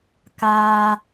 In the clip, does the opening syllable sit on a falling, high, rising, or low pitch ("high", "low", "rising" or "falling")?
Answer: high